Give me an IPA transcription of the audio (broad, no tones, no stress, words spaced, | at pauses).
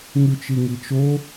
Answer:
ŋʉt͡ʃiŋit͡ʃo